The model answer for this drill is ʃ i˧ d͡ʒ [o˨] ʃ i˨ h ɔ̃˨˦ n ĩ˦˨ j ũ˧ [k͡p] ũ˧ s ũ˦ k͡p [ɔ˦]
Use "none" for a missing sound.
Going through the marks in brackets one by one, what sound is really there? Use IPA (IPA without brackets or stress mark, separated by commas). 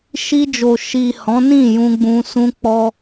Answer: o˨, ɡ͡b, ɔ˦